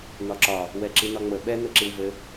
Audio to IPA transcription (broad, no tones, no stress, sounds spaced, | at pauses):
n̪ ɒ ǁ ɒ | w ɛ ǁ i n̪ ɒ ŋ͡m ə ɓ ɛ n̪ ɘ ǁ i w v ɘ